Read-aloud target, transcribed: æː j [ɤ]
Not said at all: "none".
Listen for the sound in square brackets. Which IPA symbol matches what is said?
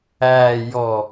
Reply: ɔ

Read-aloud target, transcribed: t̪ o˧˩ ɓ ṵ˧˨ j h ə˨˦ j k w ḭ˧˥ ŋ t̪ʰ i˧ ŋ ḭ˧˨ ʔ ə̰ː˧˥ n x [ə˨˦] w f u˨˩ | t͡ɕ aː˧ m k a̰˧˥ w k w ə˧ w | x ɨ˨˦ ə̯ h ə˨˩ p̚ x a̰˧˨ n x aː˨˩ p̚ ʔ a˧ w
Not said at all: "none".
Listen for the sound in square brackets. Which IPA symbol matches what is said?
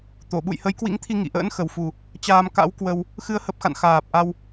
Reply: ə˨˩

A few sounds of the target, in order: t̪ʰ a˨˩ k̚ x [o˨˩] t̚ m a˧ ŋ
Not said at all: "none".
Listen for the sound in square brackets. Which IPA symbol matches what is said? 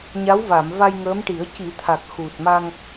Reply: u˨˩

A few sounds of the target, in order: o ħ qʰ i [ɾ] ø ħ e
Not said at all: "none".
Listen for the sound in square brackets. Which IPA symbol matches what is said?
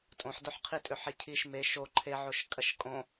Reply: tʼ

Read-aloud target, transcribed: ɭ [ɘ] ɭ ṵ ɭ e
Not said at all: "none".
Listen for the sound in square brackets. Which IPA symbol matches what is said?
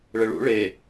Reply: ɘ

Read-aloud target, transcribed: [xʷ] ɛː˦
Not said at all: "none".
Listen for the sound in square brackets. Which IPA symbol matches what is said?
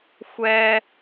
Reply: xʷ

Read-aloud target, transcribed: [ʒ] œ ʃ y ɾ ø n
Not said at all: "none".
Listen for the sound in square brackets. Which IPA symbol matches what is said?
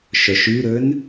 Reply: ʃ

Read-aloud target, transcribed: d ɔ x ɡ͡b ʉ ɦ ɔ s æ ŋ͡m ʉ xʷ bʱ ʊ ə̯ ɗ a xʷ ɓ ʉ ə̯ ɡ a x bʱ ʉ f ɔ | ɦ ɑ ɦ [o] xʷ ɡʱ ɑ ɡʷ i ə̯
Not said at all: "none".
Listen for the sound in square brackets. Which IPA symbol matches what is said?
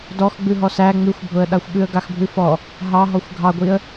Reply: ɔ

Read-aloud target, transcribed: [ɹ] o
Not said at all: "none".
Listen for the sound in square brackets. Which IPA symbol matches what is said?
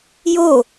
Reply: j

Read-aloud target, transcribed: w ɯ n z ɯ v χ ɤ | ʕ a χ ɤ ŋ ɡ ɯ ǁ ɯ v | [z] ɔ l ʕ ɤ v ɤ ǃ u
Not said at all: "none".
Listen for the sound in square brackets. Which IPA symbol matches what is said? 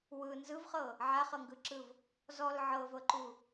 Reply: z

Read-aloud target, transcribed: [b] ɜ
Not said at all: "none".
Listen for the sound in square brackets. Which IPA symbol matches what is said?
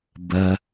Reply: b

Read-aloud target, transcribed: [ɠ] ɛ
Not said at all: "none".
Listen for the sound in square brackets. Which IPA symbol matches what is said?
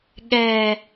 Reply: ɠ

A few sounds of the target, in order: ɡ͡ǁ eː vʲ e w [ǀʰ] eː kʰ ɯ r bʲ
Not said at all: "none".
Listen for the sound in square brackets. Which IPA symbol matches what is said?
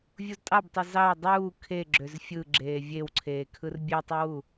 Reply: ǀʰ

